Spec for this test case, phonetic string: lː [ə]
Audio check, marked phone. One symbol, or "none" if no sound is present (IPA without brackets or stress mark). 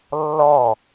ɔ